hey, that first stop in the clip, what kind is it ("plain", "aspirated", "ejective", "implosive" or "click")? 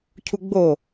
aspirated